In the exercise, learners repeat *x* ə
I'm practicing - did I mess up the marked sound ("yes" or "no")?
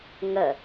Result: yes